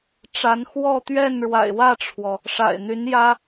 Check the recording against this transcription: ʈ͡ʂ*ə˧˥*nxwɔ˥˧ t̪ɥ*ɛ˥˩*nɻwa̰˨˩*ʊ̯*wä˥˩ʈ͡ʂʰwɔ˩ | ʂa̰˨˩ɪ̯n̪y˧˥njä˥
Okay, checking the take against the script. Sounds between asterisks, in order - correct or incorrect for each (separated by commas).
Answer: incorrect, correct, incorrect